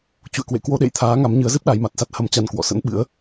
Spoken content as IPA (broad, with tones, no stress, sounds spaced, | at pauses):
t͡ɕ ṵ˧˨ ə̯ k w ḛ˧˨ k w o˧ ɗ ḛ˧˨ j t̪ʰ aː˨˦ ŋ a˨˦ m ɲ ɨ˨˦ ə̯ z ɨ˦˥ p̚ ɗ a˨˦ j m a˨˩ t̚ s a˦˥ t̚ h ə˧ m t͡ɕ a˧ n k w ɔ̰˧˨ s ə̰˧˥ n ɓ ɨ̰˧˥ ə̯